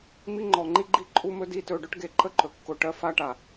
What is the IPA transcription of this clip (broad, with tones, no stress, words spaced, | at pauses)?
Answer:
mi˦ŋ͡ǃɔ˨ ŋ͡ǃi˦ɡ͡ǃi˦ǃʼu˦mɵ˦ di˦tɵ˧ ɖʊ˦ʈɡe˧ǃə˦ǃɵ˨ kːʊ˧ʈɜ˦ fa˦ʈa˨